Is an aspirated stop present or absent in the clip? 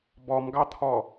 present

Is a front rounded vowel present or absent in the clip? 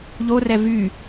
present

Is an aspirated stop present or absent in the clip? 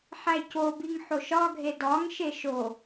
absent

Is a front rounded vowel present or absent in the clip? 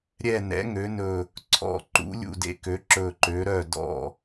present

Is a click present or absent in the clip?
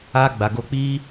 absent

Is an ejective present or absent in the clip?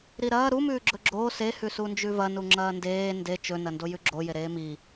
absent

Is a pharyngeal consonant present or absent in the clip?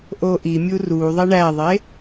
absent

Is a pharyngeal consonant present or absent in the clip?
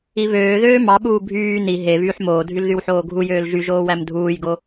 present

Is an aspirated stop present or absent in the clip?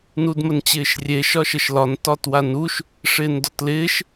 absent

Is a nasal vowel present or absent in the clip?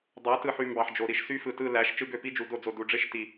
absent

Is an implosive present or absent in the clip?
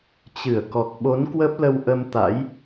present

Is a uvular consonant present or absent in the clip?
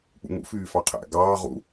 present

